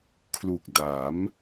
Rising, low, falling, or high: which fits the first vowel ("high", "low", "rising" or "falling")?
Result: low